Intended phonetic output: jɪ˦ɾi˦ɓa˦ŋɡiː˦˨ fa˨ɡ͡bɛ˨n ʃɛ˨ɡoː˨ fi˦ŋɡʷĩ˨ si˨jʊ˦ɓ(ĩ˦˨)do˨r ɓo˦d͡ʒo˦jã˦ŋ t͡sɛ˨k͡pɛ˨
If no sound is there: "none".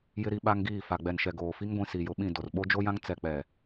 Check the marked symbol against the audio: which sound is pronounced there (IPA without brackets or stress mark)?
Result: ĩ˦˨